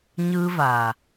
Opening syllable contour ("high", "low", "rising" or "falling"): high